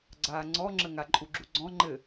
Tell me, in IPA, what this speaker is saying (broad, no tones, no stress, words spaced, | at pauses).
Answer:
ɡ͡ǀaːŋ͡ǀɔŋ͡ǁəŋa ǃʼuɡ͡ǁuɡ͡ǀɔ̃ ŋ͡ǃɘ